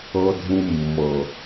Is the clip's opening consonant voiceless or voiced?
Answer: voiced